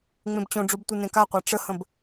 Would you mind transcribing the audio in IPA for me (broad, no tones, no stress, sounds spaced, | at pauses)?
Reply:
ŋ͡m ẽ b t͡ɕ õ ɖ͡ʐ o b tʷ ɨ n ẽ k a qʷ a ʈ͡ʂ ə h ə̃ b